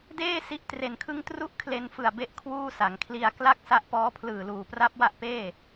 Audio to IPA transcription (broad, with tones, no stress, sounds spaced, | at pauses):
d eː˥˩ s i˦˥ ʔ t r e˨˩ n kʰ ɯ˥˩ ŋ t r u˥˩ ʔ kʰ l e˧ n f ɯ˨˩ a̯ b e˥˩ ʔ kʰ w uː˥˩ s a˩˦ ŋ kʰ l i˧ a̯ k l a˥˩ k̚ s a˦˥ ʔ p ɔː˦˥ pʰ l ɯː˨˩ l uː˨˩ p r a˦˥ p̚ w a˦˥ ʔ p eː˥˩